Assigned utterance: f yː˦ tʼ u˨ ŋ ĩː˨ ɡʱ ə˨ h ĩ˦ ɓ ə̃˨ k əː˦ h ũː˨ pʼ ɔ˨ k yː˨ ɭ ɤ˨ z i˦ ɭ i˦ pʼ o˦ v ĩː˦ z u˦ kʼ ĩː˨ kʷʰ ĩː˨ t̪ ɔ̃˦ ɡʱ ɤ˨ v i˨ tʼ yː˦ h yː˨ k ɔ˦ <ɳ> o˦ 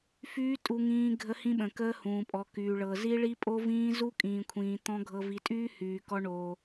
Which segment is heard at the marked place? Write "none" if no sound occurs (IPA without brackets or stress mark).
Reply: ɳ